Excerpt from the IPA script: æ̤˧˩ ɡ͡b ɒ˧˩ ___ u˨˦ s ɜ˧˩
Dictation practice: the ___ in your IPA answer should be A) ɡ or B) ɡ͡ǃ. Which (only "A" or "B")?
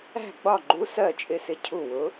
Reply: B